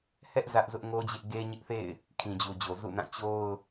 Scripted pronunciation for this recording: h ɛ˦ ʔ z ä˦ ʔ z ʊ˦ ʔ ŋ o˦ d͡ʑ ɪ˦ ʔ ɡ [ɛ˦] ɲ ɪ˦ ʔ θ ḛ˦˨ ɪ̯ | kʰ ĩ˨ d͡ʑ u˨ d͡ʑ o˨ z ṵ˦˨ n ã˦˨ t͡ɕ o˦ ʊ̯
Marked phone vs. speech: incorrect: e˦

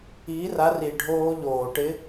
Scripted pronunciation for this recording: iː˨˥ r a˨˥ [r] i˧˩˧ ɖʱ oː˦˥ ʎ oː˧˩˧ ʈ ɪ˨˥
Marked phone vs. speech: correct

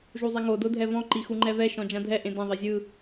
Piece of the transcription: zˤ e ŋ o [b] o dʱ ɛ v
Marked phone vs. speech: incorrect: d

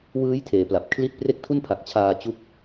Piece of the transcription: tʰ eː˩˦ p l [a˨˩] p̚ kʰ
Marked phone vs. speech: correct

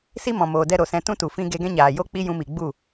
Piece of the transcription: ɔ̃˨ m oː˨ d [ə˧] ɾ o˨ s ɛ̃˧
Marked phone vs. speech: incorrect: ɛ˧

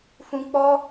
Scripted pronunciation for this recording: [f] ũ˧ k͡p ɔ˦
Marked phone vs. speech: correct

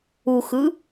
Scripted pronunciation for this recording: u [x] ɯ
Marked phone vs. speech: correct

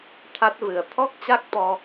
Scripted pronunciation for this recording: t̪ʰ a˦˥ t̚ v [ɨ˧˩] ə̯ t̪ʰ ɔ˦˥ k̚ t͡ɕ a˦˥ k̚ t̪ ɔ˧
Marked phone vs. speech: incorrect: ɨ˨˩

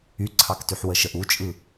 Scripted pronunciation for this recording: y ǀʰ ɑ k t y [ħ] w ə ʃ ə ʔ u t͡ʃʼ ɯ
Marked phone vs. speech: correct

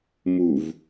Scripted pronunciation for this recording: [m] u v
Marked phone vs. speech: correct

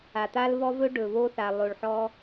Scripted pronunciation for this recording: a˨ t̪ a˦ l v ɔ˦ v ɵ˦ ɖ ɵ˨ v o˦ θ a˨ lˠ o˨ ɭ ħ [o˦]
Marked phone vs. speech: incorrect: ɔ˦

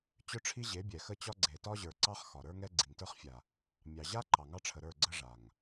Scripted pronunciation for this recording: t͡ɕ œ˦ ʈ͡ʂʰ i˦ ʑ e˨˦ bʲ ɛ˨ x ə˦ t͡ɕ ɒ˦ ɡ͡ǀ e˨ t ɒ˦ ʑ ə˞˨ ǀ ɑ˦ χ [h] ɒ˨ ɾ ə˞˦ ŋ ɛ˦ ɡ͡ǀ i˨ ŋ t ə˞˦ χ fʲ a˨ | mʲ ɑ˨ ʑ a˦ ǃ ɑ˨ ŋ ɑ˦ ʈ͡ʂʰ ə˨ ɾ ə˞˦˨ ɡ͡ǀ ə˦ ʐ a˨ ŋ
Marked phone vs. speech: incorrect: x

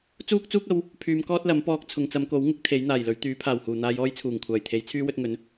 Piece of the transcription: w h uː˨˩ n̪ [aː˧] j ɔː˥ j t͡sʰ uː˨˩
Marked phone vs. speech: correct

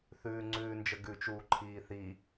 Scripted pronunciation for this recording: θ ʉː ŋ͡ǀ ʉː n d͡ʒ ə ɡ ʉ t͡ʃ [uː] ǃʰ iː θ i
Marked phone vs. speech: correct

